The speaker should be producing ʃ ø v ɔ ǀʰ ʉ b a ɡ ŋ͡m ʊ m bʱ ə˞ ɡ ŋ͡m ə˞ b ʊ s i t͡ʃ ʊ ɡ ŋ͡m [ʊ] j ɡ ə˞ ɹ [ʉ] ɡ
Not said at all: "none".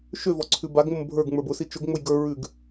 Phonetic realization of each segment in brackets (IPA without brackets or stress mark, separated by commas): ʊ, ʉ